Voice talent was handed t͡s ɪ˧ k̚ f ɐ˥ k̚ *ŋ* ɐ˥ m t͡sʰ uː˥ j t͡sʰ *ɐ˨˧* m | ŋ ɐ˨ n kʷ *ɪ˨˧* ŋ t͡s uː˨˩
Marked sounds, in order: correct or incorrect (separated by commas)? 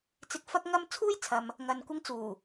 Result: correct, incorrect, incorrect